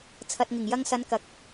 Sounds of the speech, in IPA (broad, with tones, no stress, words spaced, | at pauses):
t͡sʰɐ˨t̚ŋɪ˨˩ŋjɐ˧ŋsɐ˨˧n kɐ˨k̚